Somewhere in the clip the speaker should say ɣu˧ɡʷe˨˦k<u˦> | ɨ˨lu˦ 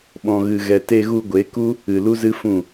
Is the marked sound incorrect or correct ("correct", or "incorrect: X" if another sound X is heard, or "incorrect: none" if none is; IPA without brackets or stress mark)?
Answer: correct